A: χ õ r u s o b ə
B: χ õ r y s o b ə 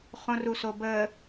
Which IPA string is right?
A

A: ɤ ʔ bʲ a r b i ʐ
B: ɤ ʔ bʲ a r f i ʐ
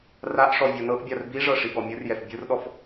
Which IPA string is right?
A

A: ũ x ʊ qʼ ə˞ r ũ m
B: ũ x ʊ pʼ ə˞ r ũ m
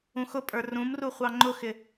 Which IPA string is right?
B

